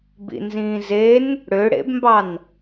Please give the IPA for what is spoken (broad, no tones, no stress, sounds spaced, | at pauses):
b ḭ n z ĩː z e n | ɽ ø ɽ ḛ b m b ɑ n